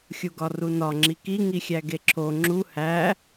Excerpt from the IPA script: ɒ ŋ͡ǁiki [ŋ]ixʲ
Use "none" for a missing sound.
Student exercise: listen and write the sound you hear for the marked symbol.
ŋ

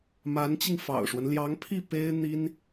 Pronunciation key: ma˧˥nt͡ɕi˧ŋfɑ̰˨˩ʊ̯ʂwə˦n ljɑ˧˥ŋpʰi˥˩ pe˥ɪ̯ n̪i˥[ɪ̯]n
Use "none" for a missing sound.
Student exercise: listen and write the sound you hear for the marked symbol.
none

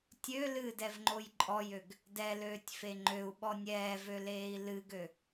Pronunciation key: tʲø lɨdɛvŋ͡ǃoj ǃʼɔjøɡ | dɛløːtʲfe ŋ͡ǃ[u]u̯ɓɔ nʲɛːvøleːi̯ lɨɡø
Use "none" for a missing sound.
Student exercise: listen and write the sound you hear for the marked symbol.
ø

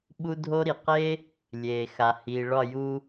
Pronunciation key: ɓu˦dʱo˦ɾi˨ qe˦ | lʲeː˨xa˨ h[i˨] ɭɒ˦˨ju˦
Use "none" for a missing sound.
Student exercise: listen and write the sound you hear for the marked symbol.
i˨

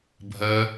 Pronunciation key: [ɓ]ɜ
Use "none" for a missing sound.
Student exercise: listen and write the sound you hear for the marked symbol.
bʱ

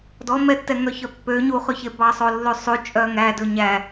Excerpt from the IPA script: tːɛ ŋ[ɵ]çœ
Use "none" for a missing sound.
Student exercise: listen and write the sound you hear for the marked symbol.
œ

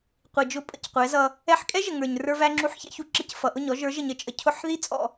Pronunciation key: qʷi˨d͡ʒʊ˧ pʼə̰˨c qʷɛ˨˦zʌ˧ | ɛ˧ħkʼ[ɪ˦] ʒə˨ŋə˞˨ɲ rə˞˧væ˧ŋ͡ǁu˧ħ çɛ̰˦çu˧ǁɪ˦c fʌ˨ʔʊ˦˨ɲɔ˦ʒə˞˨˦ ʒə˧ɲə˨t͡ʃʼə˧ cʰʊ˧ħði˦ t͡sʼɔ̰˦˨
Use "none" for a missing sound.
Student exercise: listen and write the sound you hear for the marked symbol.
ɛ˦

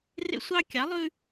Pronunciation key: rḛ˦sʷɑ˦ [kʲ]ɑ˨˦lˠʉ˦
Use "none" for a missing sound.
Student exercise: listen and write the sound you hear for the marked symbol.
kʲ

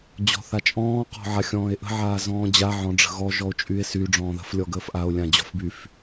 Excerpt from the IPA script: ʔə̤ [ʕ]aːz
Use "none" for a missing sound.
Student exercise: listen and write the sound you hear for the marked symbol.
ʕ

